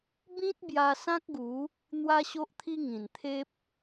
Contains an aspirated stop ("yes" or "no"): yes